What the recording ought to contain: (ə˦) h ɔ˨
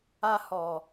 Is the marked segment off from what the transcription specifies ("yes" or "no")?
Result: yes